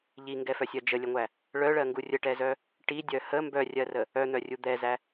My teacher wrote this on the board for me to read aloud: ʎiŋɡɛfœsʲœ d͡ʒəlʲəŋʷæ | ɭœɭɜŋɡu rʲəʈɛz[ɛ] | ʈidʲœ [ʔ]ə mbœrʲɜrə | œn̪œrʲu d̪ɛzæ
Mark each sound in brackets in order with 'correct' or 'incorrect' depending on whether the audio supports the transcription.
incorrect, incorrect

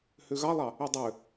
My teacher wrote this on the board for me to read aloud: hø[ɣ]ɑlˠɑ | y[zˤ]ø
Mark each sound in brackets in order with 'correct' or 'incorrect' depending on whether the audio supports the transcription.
correct, incorrect

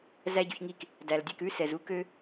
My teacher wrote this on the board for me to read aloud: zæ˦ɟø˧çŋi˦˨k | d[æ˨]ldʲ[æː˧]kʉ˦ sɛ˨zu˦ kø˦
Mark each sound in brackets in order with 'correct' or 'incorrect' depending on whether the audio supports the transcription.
correct, incorrect

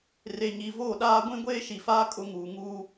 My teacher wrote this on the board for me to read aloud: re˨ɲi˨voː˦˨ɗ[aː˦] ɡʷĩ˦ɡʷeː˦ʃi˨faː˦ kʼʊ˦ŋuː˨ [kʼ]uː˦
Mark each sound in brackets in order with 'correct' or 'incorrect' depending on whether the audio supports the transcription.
correct, incorrect

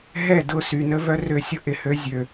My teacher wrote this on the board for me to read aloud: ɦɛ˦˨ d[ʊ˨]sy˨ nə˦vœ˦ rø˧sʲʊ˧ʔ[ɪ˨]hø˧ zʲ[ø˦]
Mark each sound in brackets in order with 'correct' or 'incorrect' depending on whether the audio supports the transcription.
incorrect, correct, incorrect

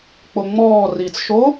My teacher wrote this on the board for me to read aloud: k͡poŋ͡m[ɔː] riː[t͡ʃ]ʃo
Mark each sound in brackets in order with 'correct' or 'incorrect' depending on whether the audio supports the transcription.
correct, incorrect

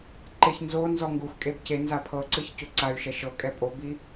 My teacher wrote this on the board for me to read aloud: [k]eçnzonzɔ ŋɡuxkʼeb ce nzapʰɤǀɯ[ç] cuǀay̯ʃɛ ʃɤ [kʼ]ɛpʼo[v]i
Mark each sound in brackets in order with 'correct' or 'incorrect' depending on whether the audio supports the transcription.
incorrect, correct, correct, incorrect

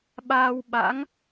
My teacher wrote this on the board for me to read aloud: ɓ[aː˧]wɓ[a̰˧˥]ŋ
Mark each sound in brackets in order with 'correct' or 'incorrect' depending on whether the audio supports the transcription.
correct, correct

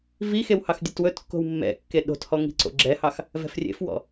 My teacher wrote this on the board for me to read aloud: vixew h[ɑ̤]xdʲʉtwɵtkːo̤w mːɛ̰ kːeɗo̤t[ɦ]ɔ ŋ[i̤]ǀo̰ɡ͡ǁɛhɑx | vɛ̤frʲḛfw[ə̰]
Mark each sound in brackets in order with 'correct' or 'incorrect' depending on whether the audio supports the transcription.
incorrect, incorrect, correct, incorrect

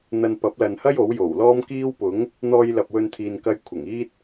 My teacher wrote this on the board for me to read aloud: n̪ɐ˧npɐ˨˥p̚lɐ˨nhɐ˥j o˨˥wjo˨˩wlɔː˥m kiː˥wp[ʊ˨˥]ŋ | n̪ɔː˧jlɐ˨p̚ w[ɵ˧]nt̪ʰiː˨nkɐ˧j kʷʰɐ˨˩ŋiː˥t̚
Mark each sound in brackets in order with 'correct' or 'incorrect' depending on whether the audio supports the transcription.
correct, correct

